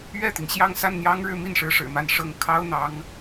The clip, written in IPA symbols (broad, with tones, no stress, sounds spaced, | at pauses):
ɥ ɛ˥˩ t̪ i˩ ŋ ɕ j ɑ˥˧ ŋ s a˥˩ n n̪ j ɑ˥ ŋ ɻ ɻ̩˥˧ m i˥˩ n ʂ ɻ̩˧˥ ʂ ɻ̩˨˩ m a˥˧ n ʂ ɤ˥˩ ŋ kʰ ɑ˥ ʊ̯ n̪ ɑ˧˥ ŋ